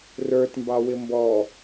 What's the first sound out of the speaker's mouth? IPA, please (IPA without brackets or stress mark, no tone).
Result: r